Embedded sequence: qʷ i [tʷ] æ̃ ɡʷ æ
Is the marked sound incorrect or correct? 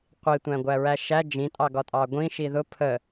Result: correct